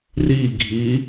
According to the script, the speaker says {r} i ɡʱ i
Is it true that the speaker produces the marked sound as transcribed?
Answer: yes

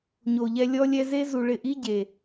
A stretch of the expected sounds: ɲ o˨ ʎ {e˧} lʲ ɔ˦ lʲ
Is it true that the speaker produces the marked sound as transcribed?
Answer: no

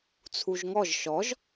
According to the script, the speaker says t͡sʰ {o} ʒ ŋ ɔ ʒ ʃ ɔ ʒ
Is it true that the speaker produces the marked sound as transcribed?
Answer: no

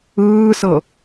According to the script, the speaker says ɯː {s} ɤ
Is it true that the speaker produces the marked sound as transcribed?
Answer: yes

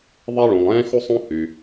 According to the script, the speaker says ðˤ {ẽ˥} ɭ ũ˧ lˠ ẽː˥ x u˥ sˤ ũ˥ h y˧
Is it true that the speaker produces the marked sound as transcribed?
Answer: no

